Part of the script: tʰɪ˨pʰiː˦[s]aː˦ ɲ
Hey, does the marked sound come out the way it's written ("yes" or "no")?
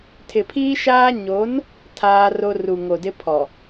no